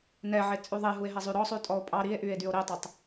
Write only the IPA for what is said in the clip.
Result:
nɛʕe t͡sʼyðˤeɦue̯ɦɛ zˤyɾɔ sˤytʼɔo̯pʼɑ ɾie̯ʔye̯dyo̯ ɾetˤætˤ

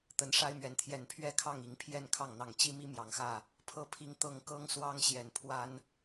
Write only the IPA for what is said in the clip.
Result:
t̪ə˨˦nʂa˦ɪ̯mɥɛ˨˩nt̪ʰjɛ˨˦n pʰɥɛ˥˨kʰɑ˥˨ŋ i˨˦ŋpʰjɛ˥˨nkʰɑ˥˨ŋ n̪ɑ˨˩ŋt͡ɕi˦mi˦ mjɑ˨˩ŋxä˥˨ | pʰɤ˥˨pʰi˦ŋ t̪ɤ˥˨ŋ kɤ˦ŋswɑ˦ŋɕjɛ˨˩npʰwa˦n

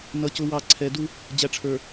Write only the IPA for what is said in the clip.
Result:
nʌ˨cʊ˨wɑ˨ ǀʰɛ˨du˦ | d͡ʑæ˨ʈ͡ʂʰə˞˨

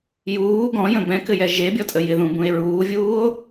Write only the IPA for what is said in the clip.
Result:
juː ɡɔ̃jə̃ bɛ̃kɘjɛ ʒebʲɔtʼə jɪðũbũe̯ ɹuːvʲuːo̯

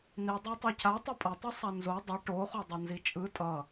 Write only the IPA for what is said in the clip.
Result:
ni dˤetˤɛcʰa tˤipʼʌtˤɯ sˤanzo dˤi ʈoχo dˤʌnzit͡ʃʼɯ tʼʌ

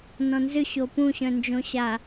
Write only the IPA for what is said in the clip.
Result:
nɔ̃nzʏ ɕopũ ɕœ̃nd͡ʒõɕa

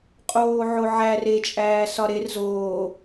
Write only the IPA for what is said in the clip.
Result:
qʼoːʕoʕær e t͡ʃʼæːsɒɾer zoː

